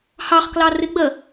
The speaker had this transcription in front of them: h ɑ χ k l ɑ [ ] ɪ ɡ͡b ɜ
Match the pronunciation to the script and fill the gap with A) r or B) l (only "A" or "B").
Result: A